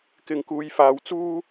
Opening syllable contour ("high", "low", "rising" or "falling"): low